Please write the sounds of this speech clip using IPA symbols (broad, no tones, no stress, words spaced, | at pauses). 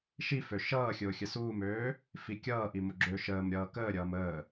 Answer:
ʃifø ʃʌːxʲʊː xʲəsuːmøː | fikʲʌːʔimʊ ɡ͡ǁøʃəːm ɾʲʌːkəːɾʲʌːm əː